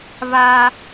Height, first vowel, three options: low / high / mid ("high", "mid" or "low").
low